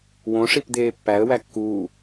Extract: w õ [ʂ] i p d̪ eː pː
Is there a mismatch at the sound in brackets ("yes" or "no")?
no